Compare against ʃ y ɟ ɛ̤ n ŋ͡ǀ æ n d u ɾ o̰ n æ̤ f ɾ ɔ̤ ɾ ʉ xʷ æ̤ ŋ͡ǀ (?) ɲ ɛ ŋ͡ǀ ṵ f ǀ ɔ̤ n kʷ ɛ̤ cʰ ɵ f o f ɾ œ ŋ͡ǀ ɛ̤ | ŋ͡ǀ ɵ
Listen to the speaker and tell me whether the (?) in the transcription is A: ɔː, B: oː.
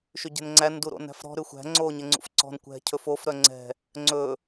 B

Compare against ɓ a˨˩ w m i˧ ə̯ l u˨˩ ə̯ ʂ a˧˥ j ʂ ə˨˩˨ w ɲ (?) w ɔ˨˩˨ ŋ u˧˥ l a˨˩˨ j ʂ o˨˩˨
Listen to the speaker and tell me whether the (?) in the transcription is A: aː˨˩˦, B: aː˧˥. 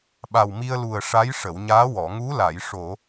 B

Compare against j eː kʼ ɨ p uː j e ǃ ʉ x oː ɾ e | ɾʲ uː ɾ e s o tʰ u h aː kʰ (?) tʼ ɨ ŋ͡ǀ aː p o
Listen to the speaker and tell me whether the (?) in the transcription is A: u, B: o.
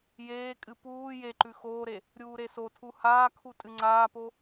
A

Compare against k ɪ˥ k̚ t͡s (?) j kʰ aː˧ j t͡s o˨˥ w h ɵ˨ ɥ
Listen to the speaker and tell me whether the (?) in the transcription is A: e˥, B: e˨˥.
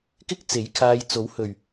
B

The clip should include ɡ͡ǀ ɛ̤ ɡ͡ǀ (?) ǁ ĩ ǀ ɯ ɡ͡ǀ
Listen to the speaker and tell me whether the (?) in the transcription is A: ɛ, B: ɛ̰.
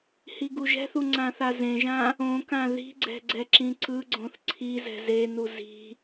A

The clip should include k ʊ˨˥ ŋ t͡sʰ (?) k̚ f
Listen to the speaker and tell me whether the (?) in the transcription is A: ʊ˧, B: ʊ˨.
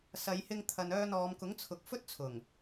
B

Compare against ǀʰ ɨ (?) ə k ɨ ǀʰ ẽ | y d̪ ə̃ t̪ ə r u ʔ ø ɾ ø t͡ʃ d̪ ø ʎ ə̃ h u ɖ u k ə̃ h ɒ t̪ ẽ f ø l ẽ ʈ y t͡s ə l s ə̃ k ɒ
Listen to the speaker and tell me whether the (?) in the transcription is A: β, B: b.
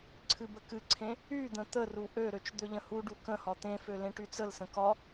B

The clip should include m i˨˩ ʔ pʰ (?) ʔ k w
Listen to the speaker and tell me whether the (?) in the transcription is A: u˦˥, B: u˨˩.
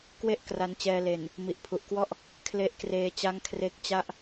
B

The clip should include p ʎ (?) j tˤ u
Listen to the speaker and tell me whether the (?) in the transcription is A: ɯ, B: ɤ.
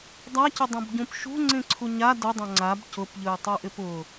A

